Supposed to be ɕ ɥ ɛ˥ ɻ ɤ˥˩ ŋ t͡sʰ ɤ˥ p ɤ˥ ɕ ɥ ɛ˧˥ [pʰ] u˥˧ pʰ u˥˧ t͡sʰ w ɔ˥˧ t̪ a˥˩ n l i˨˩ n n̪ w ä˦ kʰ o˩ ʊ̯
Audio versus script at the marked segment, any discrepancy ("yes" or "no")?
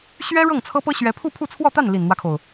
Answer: no